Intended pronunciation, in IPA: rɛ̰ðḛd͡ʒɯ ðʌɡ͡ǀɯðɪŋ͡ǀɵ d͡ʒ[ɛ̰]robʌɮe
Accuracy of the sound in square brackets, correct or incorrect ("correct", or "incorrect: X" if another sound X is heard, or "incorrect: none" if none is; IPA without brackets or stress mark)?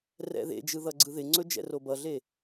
correct